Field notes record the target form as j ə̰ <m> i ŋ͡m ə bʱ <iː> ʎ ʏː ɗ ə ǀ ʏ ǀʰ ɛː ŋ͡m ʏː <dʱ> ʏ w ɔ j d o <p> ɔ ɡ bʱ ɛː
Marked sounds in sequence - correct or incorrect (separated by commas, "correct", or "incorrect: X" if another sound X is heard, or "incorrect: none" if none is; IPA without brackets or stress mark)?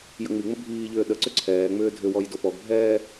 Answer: incorrect: ŋ͡m, correct, correct, correct